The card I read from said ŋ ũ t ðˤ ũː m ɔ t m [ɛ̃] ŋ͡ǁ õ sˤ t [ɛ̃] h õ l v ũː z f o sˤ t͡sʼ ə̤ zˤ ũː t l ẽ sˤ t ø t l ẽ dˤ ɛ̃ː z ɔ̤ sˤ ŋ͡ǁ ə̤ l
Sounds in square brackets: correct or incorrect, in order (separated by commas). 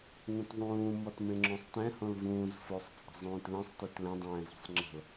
incorrect, correct